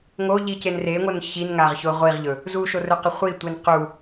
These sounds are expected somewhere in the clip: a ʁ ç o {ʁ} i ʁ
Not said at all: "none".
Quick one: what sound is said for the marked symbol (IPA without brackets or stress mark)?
ʁʷ